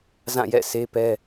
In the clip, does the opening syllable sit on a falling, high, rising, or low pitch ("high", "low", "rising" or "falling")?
falling